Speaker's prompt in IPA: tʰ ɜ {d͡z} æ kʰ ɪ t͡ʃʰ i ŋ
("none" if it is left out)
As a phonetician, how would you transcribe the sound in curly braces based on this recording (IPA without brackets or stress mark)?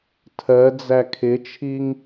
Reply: d͡z